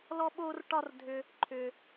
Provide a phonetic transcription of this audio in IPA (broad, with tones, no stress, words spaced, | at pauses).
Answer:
lɔ˥ɓo˥r ʈɒ˥rdʱʏ˧ | ǃʰʏ˧